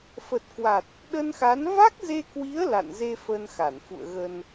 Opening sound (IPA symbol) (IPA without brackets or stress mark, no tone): f